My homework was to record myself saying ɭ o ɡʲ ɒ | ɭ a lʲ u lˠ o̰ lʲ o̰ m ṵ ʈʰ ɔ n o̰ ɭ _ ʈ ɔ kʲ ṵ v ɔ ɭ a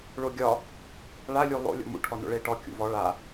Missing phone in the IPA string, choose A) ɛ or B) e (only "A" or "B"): B